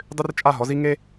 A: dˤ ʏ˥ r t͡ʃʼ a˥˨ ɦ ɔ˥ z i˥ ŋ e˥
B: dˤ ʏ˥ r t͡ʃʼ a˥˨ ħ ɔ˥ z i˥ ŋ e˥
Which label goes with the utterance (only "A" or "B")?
A